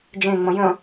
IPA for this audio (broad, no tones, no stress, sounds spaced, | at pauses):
d͡ʒ ẽ ŋ͡m ə̃ j ə̃